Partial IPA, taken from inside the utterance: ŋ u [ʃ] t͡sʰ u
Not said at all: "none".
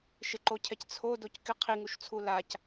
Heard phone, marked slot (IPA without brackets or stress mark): ʃ